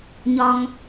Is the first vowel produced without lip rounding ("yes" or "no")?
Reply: no